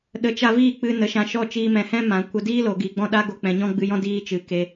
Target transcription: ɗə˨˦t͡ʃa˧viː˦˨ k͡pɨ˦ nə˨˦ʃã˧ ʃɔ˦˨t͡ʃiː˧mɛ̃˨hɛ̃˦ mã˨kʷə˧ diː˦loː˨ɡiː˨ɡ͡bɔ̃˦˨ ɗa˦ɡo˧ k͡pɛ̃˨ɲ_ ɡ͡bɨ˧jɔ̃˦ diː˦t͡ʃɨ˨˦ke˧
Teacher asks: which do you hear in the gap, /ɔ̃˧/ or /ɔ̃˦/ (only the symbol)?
ɔ̃˦